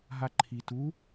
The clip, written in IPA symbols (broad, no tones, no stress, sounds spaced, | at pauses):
ɦ a ǃʰ i t u